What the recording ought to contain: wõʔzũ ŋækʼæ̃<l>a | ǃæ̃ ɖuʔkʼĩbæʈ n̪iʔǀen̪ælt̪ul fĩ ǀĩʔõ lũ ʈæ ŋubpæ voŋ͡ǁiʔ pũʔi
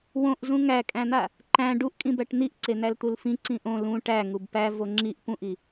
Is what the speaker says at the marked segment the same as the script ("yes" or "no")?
no